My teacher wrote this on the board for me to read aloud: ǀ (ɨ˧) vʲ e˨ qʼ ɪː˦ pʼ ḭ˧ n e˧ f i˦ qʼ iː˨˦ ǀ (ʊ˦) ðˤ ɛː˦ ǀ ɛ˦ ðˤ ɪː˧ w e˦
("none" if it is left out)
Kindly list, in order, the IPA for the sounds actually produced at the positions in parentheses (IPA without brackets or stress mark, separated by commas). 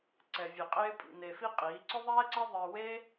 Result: ɛ˧, ʊ˦